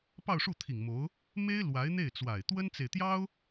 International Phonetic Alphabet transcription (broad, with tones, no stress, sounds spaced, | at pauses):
p ɑ˥˧ ʊ̯ ʂ u˥˩ t̪ʰ i˨˩ ŋ m o˧˥ ʊ̯ | m e˥ ɪ̯ l w a˧˥ ɪ̯ n̪ e˥˩ ɪ̯ t͡s w a˨˩ ɪ̯ t̪ w ə˥ n t͡s e˨ ɪ̯ t̪ j ɑ˥ ʊ̯